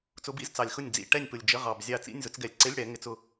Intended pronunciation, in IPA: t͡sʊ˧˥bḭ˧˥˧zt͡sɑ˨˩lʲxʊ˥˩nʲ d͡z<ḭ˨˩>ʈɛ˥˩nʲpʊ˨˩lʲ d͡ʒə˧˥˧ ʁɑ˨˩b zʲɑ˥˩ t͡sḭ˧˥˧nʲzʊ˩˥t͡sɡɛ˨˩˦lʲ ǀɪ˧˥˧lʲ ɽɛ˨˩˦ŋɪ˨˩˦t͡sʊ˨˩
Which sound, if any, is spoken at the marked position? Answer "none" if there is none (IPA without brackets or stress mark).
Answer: ḭ˨˩